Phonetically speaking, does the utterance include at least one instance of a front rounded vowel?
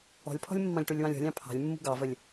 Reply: no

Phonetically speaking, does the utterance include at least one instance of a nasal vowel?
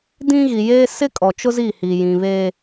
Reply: yes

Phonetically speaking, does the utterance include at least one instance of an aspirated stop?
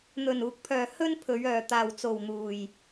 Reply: yes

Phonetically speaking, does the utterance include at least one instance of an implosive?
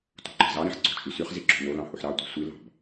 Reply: no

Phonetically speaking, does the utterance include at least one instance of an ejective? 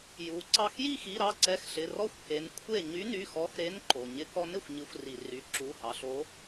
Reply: no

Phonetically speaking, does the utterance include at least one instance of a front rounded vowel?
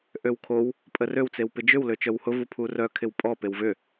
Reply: yes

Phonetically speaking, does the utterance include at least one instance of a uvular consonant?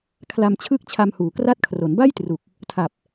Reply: no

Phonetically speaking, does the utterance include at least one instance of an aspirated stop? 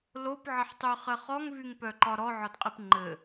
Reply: no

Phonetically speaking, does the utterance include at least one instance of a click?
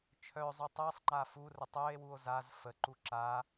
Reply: yes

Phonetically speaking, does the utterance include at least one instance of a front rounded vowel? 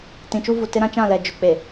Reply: no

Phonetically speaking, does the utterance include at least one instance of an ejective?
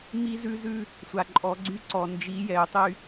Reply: yes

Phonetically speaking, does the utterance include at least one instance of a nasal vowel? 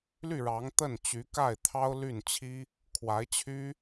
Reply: no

